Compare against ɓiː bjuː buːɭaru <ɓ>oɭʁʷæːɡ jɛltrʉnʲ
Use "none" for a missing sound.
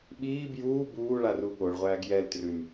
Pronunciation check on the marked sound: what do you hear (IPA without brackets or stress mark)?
ɠ